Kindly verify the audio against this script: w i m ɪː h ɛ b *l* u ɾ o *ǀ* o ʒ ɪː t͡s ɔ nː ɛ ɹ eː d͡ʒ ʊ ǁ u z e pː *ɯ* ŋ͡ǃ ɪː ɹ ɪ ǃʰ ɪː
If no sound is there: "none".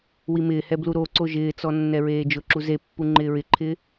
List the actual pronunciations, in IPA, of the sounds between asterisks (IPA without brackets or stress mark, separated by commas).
l, ǀ, u